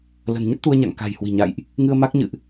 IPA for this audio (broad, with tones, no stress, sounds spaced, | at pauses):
l ə̤˨˩ n ɲ ə˦˥ t̚ t̪ u˧ ə̯ ɲ a̰˧˨ ŋ k a̤˨˩ j h w i̤˨˩ ɲ a̰˧˨ j ʔ | ŋ ɨ˧ ə̯ m a˦˥ k̚ ɲ ɨ̰˧˨ ʔ